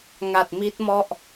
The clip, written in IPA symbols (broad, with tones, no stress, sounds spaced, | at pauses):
ŋ a˨˩ t̚ m i˦˥ t̚ m ɔ˥˩ ʔ